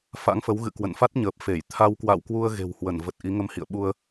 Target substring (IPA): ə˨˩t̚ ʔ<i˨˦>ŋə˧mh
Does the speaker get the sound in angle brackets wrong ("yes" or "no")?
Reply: no